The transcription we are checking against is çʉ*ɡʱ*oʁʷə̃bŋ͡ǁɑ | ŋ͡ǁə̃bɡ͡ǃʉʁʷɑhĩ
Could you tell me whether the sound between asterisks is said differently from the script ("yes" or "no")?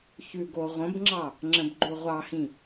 yes